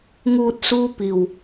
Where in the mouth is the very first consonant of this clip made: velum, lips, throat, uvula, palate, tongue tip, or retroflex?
velum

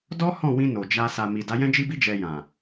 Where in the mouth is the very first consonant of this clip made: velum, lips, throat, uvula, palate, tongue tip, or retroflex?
tongue tip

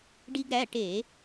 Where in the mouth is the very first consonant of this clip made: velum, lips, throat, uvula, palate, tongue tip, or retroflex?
retroflex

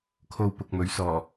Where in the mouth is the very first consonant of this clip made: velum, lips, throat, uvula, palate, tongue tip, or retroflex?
velum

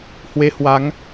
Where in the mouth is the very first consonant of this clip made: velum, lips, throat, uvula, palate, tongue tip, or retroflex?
throat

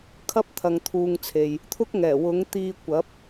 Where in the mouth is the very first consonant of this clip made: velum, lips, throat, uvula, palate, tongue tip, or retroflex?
velum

